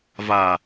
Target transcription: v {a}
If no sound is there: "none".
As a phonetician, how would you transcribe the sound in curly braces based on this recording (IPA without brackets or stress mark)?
aː